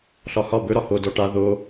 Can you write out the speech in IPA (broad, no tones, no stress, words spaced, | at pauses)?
ɬɒhɒ bɵ ɾɒho dɔʈa ðo